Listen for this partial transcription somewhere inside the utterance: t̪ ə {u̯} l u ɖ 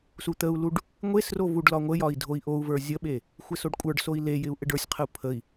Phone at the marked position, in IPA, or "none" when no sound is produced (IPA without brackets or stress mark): u̯